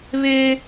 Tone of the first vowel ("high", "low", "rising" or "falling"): high